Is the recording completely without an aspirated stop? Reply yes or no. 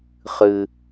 yes